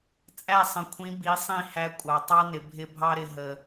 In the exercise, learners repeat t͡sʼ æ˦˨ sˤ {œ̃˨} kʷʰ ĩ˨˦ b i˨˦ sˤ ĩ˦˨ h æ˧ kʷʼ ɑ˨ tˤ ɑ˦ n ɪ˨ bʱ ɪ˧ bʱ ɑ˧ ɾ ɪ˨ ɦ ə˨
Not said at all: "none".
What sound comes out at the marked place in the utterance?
ə̃˨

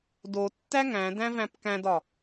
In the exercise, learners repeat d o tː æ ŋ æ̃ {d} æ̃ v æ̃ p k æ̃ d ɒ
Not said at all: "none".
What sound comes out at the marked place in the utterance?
d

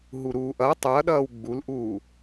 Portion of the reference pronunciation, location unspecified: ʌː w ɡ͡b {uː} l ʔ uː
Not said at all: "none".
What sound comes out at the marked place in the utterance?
u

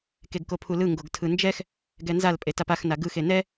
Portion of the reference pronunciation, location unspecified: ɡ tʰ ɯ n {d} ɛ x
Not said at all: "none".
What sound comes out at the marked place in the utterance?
d͡ʒ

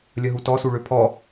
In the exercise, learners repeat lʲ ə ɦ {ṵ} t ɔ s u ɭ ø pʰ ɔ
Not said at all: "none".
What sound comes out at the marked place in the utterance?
u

